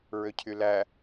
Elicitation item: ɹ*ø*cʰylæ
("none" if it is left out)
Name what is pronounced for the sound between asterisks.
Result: ø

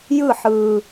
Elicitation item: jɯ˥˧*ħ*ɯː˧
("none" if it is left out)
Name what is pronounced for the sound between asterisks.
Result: ħ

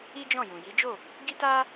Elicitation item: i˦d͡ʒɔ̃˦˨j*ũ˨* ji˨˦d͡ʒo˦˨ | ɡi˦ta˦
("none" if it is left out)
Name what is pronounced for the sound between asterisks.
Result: ũ˨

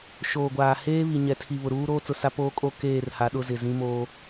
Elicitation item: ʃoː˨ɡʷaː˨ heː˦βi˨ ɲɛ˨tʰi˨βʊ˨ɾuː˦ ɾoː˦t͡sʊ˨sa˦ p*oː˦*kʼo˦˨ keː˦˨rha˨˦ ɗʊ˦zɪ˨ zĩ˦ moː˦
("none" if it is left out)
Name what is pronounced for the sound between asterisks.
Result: oː˦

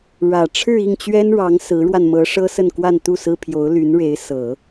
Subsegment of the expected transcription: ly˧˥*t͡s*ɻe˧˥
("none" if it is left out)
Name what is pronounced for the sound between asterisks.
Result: n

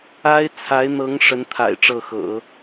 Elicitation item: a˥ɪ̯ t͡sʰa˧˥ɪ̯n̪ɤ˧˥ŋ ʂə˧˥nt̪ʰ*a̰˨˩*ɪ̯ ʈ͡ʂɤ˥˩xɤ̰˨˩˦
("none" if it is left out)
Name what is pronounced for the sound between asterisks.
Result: a̰˨˩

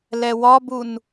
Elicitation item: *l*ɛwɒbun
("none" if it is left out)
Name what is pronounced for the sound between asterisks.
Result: l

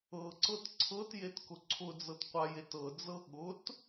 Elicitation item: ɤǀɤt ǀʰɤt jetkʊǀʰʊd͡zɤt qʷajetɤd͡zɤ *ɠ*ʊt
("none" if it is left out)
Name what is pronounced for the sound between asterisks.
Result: ɠ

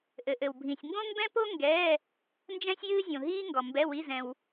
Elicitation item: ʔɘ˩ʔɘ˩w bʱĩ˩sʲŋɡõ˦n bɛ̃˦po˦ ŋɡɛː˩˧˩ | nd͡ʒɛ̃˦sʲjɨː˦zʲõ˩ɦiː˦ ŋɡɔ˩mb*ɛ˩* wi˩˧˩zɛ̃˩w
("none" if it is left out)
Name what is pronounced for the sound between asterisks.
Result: ɛ˩˧˩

